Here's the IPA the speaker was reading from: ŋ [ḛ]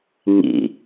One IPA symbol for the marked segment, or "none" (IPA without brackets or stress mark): ḭ